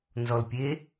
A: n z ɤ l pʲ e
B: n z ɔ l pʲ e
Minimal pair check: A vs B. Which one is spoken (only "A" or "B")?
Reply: B